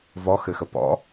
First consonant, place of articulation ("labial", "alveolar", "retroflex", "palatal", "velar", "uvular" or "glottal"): labial